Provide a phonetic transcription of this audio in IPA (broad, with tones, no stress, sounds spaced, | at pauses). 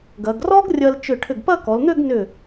ɡ ɐ˩˧ ɡ r ɔ˥ ɡ rʲ ɐ˧ l t͡ʃ ʏ˧˩ ʈʰ ʏ˧˩ ɡ p ɐ˥˧ k ɔ˩˧ l n̪ ø˥˧ ɡ n ʏ˧˩